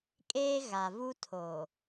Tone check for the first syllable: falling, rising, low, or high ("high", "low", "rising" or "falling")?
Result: high